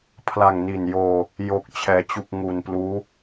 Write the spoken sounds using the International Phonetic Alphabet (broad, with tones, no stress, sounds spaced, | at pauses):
pʰ l a˨˩ ŋ n i˨˩ n j oː˧ | j o˨˩ k̚ t͡ɕʰ ɛː˩˦ t͡ɕ u˨˩ k̚ ŋ u˨˩ n p l uː˦˥